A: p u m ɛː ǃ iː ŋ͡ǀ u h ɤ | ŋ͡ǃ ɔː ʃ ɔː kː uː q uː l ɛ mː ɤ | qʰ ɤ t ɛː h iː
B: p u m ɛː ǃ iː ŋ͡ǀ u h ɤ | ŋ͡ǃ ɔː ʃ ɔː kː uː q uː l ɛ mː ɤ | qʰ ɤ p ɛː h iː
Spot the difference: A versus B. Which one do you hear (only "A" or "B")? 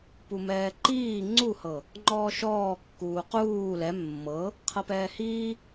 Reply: B